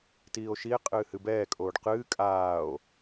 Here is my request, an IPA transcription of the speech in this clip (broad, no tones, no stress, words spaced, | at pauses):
tiːo̯ʃie̯ qʼɨːhɨbɛːkʼoːɖ qɨː kʼaːo̯